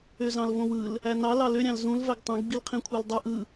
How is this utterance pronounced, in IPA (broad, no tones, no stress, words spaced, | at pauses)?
øzɑ̃lvõwɯl | ænɑ lɑlø ɾʲɑ̃lzũl væɡtˤõɡ ɡ͡bilqʰĩkʷʰældˤɯ ʔɯ